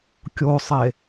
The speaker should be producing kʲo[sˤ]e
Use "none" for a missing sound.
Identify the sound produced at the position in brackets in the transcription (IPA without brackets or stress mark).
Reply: sˤ